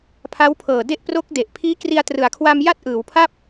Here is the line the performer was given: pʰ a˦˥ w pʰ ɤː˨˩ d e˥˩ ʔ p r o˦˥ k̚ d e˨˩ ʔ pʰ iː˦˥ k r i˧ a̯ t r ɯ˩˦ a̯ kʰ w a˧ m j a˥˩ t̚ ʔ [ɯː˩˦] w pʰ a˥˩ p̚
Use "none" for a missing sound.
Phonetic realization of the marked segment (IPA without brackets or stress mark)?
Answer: ɯː˩˦